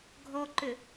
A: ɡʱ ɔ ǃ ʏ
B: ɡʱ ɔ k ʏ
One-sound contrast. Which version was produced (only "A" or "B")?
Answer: A